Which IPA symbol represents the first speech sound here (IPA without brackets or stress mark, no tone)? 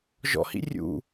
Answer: ʒ